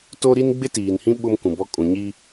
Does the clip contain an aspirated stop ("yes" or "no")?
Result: no